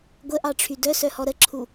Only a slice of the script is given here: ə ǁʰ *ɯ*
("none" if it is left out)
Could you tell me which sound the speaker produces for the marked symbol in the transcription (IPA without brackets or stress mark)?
u